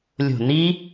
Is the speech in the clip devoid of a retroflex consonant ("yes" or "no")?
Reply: yes